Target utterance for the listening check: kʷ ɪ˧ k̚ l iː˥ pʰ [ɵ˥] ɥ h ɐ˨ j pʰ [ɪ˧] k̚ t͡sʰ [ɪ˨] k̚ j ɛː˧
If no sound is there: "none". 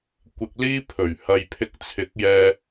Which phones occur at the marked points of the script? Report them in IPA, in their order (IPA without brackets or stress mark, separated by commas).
ɵ˨˩, ɪ˧, ɪ˨˥